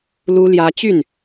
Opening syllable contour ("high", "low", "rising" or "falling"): high